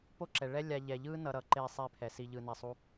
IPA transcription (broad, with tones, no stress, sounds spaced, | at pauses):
p o˦ ǁ ɛ˨ ɭ ɛ˦ lʲ a˧ ʎ ɛ˨ ʎ ɯ˦ n ʌ˧ ɾ ʌ˨˦ ǃ e˦˨ sˤ e˦ pʰ ɛ˨ s i˧ ʎ ɯ˧ n ɛ˧ sˤ u˦